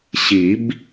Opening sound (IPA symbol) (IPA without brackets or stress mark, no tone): ɕ